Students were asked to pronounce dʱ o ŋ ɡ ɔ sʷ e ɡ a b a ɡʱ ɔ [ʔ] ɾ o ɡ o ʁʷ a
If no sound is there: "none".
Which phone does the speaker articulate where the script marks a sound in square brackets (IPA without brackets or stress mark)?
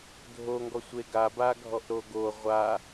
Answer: ʔ